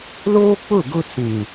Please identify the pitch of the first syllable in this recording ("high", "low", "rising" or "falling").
high